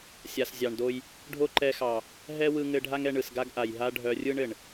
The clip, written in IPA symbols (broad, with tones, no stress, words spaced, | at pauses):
sʲa˨s zʲɑ˨ɳdo˦j | ɖʱo˦ǃɛ˧xɑ˨ | ɦɛ˦wɯ˧ŋɘ˧ɖʱa˦ŋ ɛ˧ɳɯ˨sɡa˦ɡʔa˨j ɦa˦ ɖʱœ˧rʲɯ˦ɳ ɘ˨ɳ